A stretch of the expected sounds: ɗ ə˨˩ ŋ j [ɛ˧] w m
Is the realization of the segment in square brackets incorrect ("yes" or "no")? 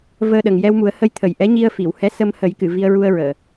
no